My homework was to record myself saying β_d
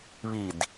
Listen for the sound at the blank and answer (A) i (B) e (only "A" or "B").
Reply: A